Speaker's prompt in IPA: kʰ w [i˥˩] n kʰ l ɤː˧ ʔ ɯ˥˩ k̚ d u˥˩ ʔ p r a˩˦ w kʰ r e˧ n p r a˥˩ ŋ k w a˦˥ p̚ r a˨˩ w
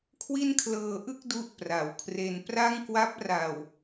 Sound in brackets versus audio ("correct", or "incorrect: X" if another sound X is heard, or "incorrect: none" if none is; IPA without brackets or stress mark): correct